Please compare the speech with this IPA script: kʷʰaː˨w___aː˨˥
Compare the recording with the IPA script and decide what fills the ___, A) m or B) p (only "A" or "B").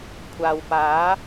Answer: B